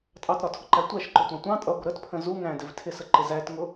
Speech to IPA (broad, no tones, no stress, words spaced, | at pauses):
tʼɑtɾɒtʰʊǃæ tʷæʃǃʊtʷɑ̃ tʷɑ̃ tʼʌɡʷə ɾətpʰə̃ zu ŋæ̃dɪv tʰɪsəǃɪ zætŋʊ